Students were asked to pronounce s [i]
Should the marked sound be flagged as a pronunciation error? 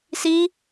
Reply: no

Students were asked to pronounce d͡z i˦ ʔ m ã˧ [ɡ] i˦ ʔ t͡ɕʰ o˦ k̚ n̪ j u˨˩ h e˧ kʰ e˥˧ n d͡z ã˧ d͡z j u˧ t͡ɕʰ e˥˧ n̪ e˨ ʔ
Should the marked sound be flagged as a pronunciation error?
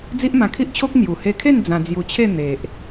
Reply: yes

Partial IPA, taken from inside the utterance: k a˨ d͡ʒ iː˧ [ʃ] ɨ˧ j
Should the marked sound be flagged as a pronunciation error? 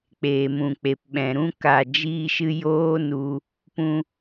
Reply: no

